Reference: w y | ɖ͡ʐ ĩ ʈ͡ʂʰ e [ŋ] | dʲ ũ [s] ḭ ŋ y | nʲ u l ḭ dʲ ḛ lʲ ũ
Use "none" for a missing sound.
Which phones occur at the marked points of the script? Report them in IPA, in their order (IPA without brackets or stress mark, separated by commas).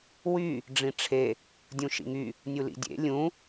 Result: none, ʃ